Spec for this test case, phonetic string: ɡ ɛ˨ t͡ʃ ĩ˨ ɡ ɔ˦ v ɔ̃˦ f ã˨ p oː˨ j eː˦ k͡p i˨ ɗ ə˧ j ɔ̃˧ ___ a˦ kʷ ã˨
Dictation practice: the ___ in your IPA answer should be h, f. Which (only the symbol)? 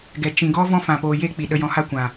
h